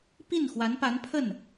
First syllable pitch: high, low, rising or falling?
falling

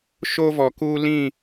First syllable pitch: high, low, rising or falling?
high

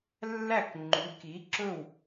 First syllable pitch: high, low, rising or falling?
falling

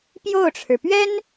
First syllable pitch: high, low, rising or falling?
falling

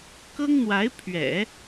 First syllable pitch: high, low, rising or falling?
high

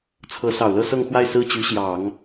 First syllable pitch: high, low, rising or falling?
rising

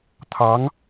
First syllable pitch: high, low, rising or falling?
rising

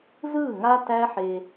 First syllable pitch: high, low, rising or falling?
falling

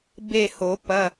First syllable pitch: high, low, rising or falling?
falling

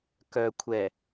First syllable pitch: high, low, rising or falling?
low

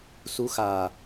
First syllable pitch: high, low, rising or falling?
rising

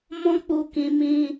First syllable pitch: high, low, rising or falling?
high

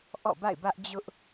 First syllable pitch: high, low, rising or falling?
falling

